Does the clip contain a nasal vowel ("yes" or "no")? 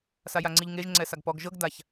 no